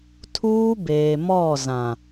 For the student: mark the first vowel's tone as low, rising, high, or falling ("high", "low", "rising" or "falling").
high